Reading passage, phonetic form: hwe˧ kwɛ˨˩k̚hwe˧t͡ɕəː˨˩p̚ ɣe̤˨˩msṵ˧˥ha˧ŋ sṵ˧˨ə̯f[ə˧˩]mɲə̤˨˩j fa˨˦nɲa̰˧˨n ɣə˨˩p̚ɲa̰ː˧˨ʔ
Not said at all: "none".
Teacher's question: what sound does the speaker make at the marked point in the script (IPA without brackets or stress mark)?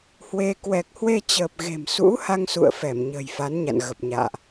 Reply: ɛ˧˩